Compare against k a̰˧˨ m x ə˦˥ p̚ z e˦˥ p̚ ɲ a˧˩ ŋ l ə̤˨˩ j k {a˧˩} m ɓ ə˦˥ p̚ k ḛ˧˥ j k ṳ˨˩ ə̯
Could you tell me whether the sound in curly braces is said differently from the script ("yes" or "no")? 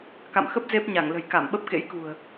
no